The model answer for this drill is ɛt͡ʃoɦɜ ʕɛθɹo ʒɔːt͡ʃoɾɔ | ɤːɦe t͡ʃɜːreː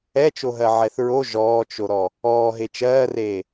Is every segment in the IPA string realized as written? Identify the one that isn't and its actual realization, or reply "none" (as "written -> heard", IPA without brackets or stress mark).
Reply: ɤː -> ɔː